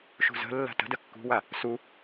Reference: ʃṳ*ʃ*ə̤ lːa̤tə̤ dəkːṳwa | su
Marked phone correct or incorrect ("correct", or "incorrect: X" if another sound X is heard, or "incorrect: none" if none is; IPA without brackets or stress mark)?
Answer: incorrect: z